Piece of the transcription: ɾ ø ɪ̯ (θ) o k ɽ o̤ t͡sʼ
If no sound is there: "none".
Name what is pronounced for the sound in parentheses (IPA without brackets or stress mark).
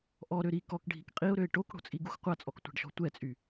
ʈ